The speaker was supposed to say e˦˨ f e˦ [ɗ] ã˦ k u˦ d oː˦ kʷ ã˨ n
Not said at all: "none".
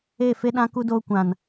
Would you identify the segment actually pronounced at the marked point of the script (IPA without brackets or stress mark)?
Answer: ɗ